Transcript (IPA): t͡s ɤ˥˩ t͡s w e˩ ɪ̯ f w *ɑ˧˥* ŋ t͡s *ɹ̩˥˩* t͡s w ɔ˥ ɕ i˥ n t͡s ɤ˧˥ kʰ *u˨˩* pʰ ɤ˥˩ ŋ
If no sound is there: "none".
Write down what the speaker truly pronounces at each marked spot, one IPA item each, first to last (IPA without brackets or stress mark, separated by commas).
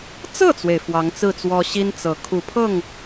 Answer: ɑ˧˥, ɹ̩˥˩, u˨˩